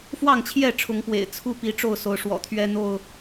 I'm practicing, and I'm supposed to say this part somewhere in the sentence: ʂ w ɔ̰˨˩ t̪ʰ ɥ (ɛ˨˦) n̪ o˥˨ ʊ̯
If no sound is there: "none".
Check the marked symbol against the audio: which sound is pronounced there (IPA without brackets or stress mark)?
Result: ɛ˦